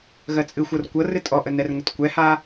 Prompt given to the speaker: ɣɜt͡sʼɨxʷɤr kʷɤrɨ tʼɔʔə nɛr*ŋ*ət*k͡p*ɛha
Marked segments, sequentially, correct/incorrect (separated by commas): correct, incorrect